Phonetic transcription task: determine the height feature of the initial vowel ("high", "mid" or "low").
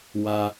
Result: low